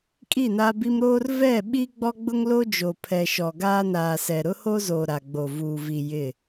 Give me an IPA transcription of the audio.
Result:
kʼi˦˨na˦bi˦m ɾoː˦rvɛ˦˨ ɓi˦ɡ͡bɔ˦ɡ͡bʊ˦ŋ lo˦ d͡ʒo˨pʰɛ˨ʃɔ˨ ɡaː˦naː˨sɛ˨ ɾʊ˦ho˦zoː˨ ɾa˨ɡ͡bo˨ vuː˨ vi˨ jɪ˦˨

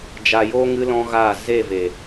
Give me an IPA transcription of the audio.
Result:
d͡ʒa˨jo˧ ŋɨ˦lɔ̃˦ɣaː˦˨ ze˦˨ve˨

